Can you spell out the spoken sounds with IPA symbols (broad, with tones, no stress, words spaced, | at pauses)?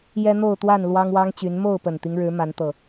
jɛ˦n̪o˥˨ʊ̯t̪wa˥˨n lwɑ˦ŋwɑ˦ŋt͡ɕy˨˦n mo˥˨ʊ̯pə˨˩nt̪i˦ŋɻɻ̩˨˦ ma˨˦nt̪ɤ˨˩